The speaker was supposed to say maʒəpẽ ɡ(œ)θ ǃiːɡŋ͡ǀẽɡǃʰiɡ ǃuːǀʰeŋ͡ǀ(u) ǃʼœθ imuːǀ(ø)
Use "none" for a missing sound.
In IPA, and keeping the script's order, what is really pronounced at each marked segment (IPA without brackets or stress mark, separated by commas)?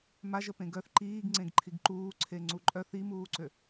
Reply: œ, u, ø